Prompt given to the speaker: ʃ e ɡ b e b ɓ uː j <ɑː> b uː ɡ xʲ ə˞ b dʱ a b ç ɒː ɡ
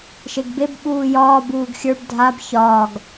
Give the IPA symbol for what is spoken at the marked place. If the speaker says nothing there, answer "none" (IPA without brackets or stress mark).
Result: ɒː